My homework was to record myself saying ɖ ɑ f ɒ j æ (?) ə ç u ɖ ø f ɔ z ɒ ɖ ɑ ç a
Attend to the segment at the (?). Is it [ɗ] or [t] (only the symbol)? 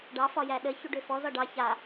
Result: ɗ